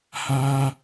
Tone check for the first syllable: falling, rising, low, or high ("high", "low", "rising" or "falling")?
high